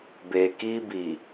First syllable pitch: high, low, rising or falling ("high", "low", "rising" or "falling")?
low